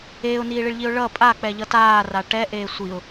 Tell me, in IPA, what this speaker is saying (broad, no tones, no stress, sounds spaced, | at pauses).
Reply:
eː ʊ̯ n iː ɭ i ɭ ʎ i ʊ̯ ɭ ʌ pʼ a k͡p ɛ ʎ ʌ t aː r a ʈ ɛ ʔ eː sʷ i ʊ̯